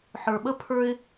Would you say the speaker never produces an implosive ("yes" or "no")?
no